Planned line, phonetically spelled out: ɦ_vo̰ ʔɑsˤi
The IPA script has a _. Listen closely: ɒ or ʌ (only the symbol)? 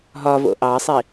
ɒ